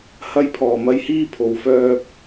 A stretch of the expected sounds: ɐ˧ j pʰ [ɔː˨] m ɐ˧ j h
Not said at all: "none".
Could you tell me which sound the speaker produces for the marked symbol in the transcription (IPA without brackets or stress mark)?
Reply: ɔː˨˩